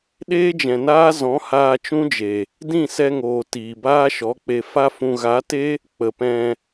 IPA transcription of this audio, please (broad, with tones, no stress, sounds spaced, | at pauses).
ɗ eː˦ d͡ʒ ɛ̃˨ n aː˦ z ɔ̃˨˦ h aː˧ t͡ʃ ũ˦ d͡ʒ e˨ | d ĩ˦˨ s ɛ˧ ŋ oː˨ t iː˨ b aː˦ ʃ ɔ˨˦ k͡p e˧ f a˧ f ũ˨ ɣ a˨˦ t e˦ | k͡p ə˨ p ɛ̃˧